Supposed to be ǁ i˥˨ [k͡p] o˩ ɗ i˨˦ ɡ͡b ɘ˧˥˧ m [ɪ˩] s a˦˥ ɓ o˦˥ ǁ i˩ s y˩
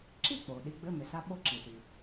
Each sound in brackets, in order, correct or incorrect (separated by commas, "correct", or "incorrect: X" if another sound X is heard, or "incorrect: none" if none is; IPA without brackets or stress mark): correct, correct